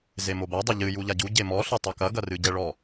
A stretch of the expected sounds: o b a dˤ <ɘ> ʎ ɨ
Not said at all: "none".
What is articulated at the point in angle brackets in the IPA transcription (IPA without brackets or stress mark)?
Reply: ɘ